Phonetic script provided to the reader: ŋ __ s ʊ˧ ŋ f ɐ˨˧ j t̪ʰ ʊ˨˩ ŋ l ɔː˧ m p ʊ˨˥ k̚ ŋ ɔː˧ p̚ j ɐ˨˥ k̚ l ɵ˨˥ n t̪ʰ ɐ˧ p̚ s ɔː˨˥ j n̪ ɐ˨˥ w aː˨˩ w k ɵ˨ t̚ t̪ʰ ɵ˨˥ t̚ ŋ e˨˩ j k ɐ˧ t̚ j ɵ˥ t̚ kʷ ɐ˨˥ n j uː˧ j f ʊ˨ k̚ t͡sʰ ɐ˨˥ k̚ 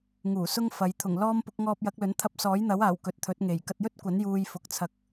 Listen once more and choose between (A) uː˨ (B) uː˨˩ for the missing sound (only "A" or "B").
B